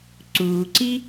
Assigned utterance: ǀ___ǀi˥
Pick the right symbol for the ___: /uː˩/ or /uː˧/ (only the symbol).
uː˩